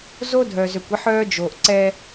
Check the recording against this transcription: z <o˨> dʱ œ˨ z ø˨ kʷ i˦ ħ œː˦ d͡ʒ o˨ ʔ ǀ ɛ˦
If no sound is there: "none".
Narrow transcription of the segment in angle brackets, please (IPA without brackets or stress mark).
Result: o˦